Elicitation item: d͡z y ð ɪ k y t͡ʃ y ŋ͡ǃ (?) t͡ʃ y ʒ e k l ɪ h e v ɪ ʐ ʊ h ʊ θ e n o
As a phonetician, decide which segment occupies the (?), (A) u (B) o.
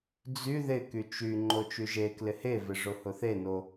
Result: B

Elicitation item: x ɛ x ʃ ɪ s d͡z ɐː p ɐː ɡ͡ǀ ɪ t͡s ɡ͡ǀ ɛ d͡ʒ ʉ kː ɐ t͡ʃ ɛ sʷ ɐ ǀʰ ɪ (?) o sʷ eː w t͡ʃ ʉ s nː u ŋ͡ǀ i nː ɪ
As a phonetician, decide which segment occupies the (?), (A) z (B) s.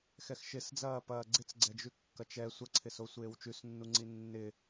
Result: B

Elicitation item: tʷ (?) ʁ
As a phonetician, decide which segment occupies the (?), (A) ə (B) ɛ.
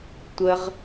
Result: A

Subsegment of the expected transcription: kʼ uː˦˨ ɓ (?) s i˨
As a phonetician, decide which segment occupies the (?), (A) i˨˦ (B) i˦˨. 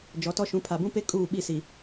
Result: B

